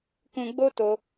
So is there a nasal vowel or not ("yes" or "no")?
yes